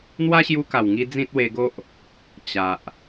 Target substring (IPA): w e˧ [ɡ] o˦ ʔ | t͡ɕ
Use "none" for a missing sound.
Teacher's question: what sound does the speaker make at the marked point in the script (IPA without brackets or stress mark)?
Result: ɡ